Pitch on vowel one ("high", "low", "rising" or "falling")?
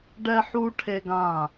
high